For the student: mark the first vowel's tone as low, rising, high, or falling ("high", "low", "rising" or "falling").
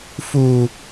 low